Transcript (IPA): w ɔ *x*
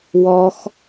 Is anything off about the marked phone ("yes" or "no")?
no